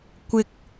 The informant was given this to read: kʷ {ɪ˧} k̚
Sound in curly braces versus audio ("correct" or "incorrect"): correct